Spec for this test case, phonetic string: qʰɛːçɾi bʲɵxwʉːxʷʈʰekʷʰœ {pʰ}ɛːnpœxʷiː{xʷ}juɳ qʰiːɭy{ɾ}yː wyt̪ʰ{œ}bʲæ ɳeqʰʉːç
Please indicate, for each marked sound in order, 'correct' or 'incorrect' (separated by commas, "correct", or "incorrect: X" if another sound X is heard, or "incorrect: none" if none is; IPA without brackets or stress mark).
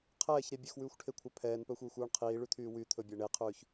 correct, correct, incorrect: t̪ʰ, incorrect: ɵ